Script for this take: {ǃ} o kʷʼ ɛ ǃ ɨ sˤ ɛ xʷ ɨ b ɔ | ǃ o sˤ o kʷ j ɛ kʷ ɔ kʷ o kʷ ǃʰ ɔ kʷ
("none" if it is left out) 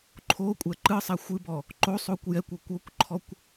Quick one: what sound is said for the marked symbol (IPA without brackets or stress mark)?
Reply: ǃʰ